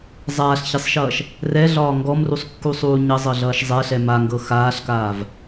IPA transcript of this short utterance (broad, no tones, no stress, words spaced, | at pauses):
zˤaːɬçesˤʃʌːʃ | rɛɮɒː ŋɡɔmrusˤkːusˤuː ɲʌzˤɤɮʌːʃ zˤɛɬɛ maŋɡɤ xaːɬkaːv